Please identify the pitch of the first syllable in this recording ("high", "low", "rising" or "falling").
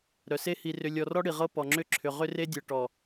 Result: low